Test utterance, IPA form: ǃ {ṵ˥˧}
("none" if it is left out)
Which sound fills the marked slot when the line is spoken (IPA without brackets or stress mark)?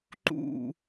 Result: ṵ˥˧